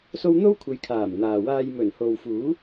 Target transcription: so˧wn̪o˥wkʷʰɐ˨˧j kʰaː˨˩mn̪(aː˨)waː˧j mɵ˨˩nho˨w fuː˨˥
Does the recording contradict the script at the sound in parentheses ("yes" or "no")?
no